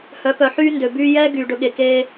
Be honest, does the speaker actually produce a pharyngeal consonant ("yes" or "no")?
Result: yes